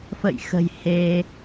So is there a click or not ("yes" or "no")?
no